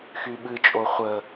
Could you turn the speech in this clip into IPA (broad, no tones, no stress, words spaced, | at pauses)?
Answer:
xyɓɨt͡ʃʼo χʷə